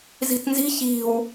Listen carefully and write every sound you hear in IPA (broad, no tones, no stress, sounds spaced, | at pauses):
z i̤ t n z i̤ ç i̤ w